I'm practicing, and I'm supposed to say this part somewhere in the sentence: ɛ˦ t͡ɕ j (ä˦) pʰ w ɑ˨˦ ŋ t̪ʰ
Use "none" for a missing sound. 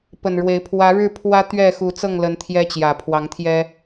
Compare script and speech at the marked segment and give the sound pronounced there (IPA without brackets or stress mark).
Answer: ä˨˩